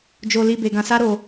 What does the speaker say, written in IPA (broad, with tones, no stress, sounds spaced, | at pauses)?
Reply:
d͡ʒ o˧ l i˧ b e˧ ɡ ã˧ s a˦ ɾ o˧